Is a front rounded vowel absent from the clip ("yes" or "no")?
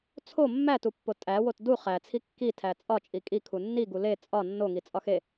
yes